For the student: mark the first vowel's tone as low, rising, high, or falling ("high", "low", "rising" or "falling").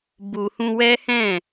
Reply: low